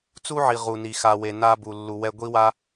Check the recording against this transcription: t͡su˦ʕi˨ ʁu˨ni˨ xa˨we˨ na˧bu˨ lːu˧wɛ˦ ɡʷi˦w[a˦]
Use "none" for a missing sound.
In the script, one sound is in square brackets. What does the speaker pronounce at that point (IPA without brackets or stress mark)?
a˦